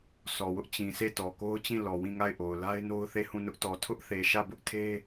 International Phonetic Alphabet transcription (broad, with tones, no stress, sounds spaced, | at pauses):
sʰ ɔ˨ w ʊ˦ ʔ t͡ɕ ĩ˨ sʰ e˦˨ t ɔ˨ k o˦ ʊ̯ t͡ɕ ĩ˦˨ l ɔ˨ w ĩ˦˨ ŋ a˦˨ ɪ̯ ʔ o˨ ʊ̯ l a˦ ɪ̯ n o˦ ʊ̯ θ e˦˨ h ũ˦˨ n ʊ˦ ʔ t ɔ˨ tʰ ʊ˦ ʔ θ e˨ ʃ ä˦˨ b ʊ˦ ʔ tʰ e˦